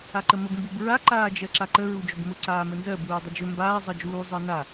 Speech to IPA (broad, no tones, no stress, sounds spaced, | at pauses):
a ǃ ə m ə b m b u b ɹ a ǃ aː d͡ʒ ɜ ǁ a ǃ ə ɹ u d͡ʒ ʊ b m ʊ ǀ aː m ə n z ɜ b uː dˤ ə d͡ʒ ɵ m b aː zˤ ɜ d͡ʒ uː zˤ ɜ n a